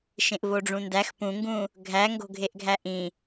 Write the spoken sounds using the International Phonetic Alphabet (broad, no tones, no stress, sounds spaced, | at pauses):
ʃ ẽ ʔ v o ɖ͡ʐ ũ n d æ x p ũ ŋ ɡ ũ | ɡʱ æ ŋ ɡ o̤ ɡʱ e ʔ ɡʱ æ ʔ ĩ